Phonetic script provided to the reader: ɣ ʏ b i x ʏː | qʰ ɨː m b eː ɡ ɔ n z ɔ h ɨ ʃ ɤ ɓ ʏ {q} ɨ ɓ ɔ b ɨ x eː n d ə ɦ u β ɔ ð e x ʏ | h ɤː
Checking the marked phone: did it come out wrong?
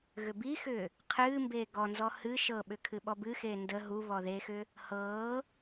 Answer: yes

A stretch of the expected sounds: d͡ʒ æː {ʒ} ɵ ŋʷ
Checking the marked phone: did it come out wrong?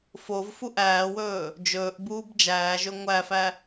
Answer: no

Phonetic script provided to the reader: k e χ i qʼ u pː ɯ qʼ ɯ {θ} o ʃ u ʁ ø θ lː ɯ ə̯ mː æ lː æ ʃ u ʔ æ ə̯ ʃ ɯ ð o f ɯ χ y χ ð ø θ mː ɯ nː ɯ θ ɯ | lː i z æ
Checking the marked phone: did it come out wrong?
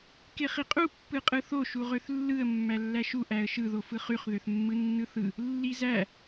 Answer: no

